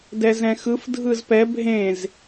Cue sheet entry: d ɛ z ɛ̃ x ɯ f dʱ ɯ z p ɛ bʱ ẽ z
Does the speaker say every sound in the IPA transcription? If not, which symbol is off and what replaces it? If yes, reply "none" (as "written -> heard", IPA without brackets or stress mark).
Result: none